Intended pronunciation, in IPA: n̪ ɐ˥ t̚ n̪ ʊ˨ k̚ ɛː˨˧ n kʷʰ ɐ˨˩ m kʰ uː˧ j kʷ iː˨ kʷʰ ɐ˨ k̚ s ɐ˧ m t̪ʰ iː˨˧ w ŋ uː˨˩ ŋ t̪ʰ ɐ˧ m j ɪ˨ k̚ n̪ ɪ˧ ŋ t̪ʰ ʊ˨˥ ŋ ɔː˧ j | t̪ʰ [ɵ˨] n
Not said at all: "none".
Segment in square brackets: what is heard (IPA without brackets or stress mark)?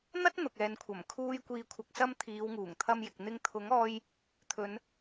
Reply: ɵ˨˧